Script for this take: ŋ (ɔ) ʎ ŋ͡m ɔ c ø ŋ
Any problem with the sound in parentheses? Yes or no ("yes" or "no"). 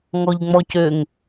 no